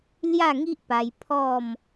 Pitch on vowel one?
falling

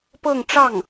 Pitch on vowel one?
falling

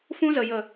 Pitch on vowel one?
high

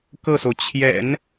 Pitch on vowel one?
falling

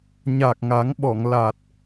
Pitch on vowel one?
low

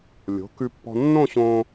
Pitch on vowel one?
rising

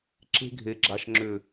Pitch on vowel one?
high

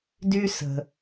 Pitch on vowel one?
high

